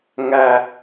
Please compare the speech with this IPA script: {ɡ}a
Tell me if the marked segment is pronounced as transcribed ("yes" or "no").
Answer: no